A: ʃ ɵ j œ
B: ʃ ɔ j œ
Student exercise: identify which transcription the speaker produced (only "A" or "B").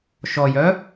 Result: B